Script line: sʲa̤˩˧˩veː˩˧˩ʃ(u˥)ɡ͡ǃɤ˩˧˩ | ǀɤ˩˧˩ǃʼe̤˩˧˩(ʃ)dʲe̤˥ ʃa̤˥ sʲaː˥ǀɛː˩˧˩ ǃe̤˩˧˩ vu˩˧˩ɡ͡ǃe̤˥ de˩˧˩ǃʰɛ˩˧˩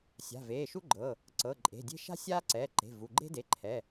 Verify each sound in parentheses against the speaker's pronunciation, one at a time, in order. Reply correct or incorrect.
correct, incorrect

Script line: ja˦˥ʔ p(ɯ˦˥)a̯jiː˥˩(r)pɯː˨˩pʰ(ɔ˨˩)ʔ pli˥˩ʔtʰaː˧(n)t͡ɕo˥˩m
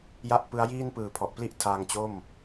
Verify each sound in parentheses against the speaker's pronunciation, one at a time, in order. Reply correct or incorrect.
correct, incorrect, correct, incorrect

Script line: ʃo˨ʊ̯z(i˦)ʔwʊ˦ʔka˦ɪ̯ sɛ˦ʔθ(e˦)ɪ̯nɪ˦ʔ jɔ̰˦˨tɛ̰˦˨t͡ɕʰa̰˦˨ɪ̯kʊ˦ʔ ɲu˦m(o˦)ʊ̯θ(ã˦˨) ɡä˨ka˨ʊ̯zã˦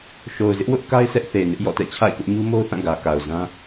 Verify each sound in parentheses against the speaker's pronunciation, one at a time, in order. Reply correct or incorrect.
incorrect, incorrect, correct, correct

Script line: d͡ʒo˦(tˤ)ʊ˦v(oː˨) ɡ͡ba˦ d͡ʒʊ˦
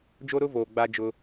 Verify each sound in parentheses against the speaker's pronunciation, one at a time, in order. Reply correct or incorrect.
incorrect, correct

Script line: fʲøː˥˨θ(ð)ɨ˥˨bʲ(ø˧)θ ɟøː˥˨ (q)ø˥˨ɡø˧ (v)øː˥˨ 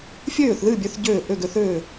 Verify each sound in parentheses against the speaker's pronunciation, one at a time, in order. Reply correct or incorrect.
correct, correct, incorrect, incorrect

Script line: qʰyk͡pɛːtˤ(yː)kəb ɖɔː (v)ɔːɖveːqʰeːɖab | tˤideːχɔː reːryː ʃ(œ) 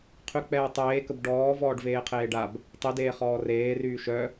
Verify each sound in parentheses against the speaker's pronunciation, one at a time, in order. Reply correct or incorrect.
incorrect, correct, correct

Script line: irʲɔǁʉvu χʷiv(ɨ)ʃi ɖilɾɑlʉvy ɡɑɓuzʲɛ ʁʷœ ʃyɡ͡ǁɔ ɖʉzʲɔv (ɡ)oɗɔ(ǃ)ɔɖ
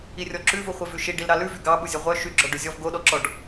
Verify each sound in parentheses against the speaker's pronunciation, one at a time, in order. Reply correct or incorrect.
incorrect, correct, incorrect

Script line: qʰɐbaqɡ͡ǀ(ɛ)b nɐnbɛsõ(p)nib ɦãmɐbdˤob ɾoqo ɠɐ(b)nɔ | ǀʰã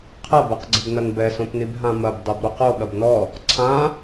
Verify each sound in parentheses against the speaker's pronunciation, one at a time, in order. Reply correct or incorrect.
incorrect, correct, correct

